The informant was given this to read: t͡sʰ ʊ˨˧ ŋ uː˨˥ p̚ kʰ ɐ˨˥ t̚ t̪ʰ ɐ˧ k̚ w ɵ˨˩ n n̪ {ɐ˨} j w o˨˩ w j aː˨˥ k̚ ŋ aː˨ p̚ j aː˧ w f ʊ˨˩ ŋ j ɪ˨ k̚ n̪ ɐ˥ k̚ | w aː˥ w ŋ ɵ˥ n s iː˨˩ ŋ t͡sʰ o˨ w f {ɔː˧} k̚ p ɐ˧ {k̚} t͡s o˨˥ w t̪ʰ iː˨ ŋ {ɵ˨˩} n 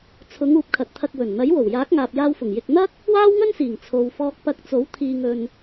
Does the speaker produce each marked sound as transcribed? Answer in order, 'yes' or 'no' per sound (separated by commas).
no, yes, yes, no